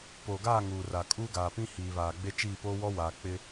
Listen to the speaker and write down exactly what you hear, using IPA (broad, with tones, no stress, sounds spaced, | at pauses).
p oː˨ ɡ aː˦˨ ŋ uː˨ r a˨ kʼ uː˦ ɡ aː˨ p ĩ˦ h iː˨ β aː˨ ɡ͡b e˦ t͡ʃ iː˦˨ p oː˦ w ɔ˦ w aː˨ k͡p ɪ˦